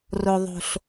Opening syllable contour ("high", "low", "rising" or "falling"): low